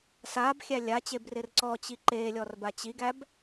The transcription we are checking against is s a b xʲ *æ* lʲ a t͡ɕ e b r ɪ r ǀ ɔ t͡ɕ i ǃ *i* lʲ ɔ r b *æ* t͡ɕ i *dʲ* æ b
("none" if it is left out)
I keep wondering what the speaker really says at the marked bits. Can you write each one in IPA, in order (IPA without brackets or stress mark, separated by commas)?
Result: æ, e, a, ɡ